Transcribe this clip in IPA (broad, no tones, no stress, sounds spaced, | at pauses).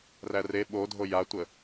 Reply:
r æ r e ɓ o dʱ o j a tʷ ə